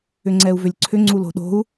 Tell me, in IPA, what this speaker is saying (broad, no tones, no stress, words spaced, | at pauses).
ʏŋ͡ǀɛu̯vʏlʲǀʰʏ ŋ͡ǀulo̤ɗo̤u̯